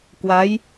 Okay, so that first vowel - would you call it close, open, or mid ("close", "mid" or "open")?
open